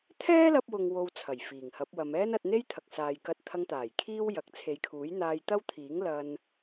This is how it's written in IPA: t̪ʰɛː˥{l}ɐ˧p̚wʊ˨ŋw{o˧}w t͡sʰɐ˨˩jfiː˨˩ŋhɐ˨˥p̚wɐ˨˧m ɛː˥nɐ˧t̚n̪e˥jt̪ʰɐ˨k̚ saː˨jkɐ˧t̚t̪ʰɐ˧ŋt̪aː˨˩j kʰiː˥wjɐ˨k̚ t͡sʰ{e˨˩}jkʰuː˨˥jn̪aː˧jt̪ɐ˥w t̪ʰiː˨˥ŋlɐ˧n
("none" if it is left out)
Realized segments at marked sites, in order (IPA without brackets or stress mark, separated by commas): l, o˨, e˨˧